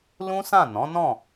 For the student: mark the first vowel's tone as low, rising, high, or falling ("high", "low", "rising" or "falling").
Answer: high